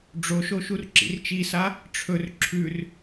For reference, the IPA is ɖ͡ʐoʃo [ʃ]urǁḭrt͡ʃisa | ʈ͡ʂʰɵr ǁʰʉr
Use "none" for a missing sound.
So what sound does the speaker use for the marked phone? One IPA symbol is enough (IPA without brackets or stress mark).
ʃ